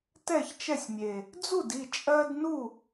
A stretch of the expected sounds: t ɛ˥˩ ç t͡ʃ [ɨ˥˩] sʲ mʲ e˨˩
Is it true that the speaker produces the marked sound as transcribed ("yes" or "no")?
no